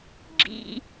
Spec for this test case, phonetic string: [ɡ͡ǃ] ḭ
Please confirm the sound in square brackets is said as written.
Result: no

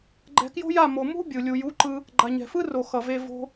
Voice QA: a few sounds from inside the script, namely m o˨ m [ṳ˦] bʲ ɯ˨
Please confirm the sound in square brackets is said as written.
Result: yes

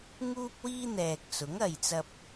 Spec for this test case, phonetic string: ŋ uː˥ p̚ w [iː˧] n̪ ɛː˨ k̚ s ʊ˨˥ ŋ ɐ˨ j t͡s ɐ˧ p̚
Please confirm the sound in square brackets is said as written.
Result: no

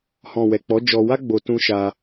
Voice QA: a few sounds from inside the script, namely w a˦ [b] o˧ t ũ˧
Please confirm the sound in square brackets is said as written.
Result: no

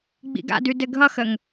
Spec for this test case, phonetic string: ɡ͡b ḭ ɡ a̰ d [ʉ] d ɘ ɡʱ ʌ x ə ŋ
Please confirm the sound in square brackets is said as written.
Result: yes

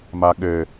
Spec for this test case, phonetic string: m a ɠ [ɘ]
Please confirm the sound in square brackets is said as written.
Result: yes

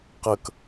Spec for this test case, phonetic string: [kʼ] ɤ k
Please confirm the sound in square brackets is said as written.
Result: no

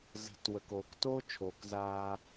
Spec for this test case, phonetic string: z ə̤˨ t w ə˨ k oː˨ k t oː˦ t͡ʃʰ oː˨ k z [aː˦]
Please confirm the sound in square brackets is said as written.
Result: yes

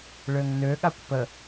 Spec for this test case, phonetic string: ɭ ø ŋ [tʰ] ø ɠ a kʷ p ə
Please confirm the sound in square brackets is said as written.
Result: no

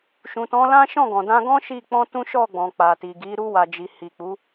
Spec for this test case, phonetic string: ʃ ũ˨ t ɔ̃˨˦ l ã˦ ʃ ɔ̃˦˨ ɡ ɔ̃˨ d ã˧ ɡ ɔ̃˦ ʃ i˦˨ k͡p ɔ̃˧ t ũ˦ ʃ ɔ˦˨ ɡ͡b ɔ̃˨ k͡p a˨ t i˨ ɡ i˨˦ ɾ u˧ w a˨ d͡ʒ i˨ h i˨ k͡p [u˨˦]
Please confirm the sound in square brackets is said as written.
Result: yes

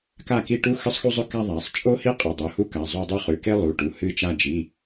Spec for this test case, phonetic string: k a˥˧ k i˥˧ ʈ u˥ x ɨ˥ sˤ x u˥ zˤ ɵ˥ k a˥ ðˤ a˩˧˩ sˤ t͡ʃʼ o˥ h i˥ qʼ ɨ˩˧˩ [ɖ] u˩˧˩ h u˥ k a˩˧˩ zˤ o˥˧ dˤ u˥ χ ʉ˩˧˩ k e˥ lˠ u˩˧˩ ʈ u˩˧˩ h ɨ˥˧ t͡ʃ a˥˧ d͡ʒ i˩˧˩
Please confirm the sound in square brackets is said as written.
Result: no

